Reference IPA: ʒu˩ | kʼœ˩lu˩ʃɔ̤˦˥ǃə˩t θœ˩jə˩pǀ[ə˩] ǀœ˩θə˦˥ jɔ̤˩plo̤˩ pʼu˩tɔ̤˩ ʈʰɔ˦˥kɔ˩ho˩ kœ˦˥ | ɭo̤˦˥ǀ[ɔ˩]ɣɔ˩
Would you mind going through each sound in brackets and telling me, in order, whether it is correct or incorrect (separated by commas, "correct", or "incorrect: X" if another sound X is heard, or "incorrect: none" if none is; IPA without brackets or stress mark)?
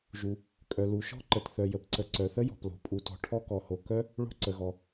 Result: correct, incorrect: ə˩